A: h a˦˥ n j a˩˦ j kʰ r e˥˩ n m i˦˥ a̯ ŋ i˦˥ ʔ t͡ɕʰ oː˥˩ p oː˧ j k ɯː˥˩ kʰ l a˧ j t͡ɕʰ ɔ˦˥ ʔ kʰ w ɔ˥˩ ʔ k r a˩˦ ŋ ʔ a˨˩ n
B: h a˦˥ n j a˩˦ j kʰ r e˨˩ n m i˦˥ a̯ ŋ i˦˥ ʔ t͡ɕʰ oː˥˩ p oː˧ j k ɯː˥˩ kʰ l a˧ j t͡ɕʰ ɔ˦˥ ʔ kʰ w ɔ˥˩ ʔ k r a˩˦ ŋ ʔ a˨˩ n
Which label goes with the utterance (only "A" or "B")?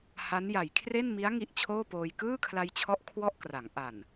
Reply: A